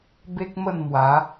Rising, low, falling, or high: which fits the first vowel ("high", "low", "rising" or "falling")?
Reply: high